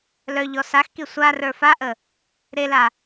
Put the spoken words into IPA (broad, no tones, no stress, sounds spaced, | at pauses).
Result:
l œ ʎ ɔ s a x k i sʷ a r ə˞ f a ʔ ə | ɾ e l a